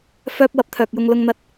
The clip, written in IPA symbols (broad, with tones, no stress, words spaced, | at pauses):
fœː˧p̚ wɐ˨p̚t̪ʰœː˨k̚jʊ˧ŋ lʊ˧ŋn̪ɐ˧t̚